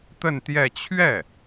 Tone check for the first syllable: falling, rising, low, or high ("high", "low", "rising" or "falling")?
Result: falling